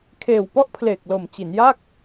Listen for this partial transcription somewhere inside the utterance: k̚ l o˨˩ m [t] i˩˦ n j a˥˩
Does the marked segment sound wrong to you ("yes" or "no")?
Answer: yes